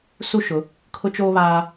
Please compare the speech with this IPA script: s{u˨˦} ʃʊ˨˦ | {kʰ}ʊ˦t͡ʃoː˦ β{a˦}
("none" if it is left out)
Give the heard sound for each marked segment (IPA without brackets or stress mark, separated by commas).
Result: u˦, kʰ, aː˦